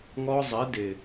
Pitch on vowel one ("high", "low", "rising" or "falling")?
high